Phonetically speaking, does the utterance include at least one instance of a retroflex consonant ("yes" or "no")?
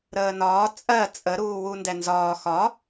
no